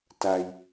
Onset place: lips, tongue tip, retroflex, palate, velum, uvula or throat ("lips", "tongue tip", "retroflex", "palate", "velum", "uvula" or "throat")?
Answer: tongue tip